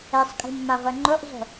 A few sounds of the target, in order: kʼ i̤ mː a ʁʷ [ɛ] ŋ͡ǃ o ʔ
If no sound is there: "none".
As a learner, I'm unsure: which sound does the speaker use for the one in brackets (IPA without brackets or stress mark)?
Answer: ɛ